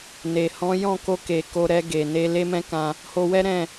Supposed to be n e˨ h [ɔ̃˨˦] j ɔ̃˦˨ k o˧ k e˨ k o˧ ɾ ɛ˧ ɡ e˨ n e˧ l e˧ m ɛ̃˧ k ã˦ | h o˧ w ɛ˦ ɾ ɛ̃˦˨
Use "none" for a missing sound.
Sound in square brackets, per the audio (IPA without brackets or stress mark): ɔ̃˨˦